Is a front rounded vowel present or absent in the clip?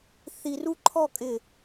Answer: absent